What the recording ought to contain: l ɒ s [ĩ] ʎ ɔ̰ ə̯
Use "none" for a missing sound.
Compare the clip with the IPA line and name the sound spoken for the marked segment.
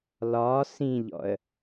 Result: ĩ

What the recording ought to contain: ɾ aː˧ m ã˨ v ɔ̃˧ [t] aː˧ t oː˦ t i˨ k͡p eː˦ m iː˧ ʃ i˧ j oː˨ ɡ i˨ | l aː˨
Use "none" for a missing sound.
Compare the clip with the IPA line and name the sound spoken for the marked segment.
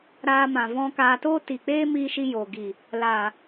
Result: k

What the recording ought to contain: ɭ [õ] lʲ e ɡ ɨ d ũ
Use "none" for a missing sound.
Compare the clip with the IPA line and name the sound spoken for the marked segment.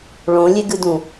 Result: õ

